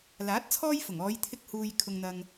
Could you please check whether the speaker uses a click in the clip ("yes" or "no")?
no